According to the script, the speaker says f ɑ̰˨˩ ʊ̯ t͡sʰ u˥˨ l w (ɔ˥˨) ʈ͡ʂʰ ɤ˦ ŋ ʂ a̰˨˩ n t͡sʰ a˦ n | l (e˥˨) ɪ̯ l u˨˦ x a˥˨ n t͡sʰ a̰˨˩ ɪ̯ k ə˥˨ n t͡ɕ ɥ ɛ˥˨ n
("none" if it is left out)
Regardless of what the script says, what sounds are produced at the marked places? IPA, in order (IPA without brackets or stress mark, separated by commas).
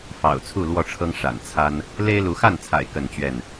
ɔ˥˨, e˦